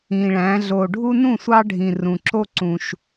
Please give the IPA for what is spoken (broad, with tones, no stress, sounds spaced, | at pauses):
ĩ˨˩ ɭ æ̃˩˧ ɮ o˨˩ ɖʱ u˦ n ũ˥˩ sʷ ɑ˦ ɖʱ ĩ˨˩ r ũ˨˩ ǁ o˦ ǀ ũ˨˩ ʃ